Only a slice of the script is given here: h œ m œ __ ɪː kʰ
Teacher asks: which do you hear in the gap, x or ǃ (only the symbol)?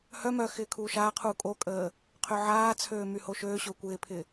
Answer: x